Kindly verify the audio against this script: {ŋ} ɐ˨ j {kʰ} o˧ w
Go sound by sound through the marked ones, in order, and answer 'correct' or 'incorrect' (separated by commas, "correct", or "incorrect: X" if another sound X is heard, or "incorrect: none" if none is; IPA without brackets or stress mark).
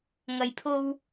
correct, incorrect: pʰ